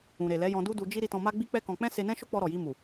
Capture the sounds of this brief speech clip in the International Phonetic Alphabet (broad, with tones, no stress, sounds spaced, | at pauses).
ũ˨ ɾ e˨ l ɛ˨˦ j ɔ̃˧ d u˦ d u˧ d͡ʒ i˦ ɾ i˧ t ɔ̃˧ m a˦ ɡ͡b i˦ k͡p ɛ˦ k ɔ̃˧ k͡p ɛ̃˦ s e˧ n ɛ̃˦ ʃ o˦ k͡p ɔ˧ ɾ ɔ˨ j i˧ m u˨